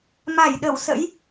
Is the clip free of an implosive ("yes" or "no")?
no